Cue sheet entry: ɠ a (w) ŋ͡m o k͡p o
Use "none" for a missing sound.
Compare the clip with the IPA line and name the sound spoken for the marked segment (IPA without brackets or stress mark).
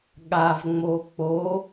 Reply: v